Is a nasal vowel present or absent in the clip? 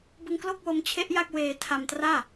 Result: absent